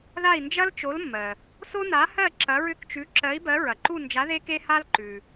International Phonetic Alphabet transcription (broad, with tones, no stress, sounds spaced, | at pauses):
ð a˦˨ i̯ n d͡ʒ ɐ˦ l t͡ʃ o˨˦ l mː ɜ˩ | s o˦ n a˨˦ h ɜ˦˨ ǁ ɐ˨˦ ɹ ʏ˦˨ k t͡ʃ ʉ˨˦ ǁ ɜ˨˦ i̯ b ɜ˨˦ ɹ ɐ˩ ǃ u˦˨ n d͡ʒ a˨˦ ð e˦ k e˦ h a˦ l ǃ ʉ˩